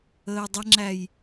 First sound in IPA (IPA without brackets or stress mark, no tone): əː